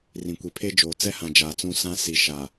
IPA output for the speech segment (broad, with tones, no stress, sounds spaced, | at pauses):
r ĩ˨ kʷ i˨ pʰ e˦ d͡ʒ oː˨ t͡s ɛ˦ h ã˨ d͡ʒ aː˨ t͡s ũ˦˨ s ã˦ s i˨ ʃ a˨